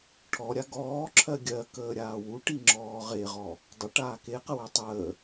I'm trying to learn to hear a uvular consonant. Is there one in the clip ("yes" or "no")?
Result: yes